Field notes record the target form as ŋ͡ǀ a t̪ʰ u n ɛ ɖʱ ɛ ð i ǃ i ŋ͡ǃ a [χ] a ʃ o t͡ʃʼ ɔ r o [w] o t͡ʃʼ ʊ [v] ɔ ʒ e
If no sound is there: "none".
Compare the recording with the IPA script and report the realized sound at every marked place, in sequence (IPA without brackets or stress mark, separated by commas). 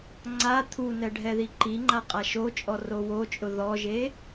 qʼ, w, ð